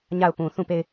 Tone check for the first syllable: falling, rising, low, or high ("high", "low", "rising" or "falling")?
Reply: falling